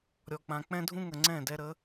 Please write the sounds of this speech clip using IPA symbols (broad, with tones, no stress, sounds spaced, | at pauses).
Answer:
ɾʲ ɔ˨ k͡p ã˨ k͡p ɛ̃˦ dʱ ũ˦ ŋ ə˨ ŋ͡ǀ ɛ̃˦˨ d ɛ˧ ɾ ə˨˦